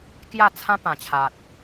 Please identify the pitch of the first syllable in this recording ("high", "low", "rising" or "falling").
falling